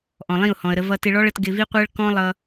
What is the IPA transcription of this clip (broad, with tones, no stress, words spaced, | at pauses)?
ʔɔ̃˨lˠĩ˦˨ʊ̯hɔ̃˨ə̯ɾə˧ vʌ˧tɪ˧ɭɔ˦ɭə˧t ɡɪ˧vi˦qʷɜ˦ɭ kɔ̃˦lˠʌ˧